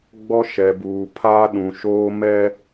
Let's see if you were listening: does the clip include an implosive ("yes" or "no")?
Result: yes